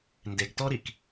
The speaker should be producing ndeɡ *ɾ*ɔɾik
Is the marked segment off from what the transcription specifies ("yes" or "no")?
yes